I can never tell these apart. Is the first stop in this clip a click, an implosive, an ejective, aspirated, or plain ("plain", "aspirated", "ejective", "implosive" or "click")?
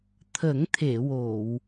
aspirated